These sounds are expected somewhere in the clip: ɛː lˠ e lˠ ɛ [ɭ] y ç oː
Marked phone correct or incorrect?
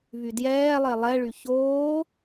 correct